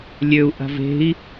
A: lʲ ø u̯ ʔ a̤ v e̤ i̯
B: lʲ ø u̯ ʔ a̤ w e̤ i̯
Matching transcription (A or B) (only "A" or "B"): A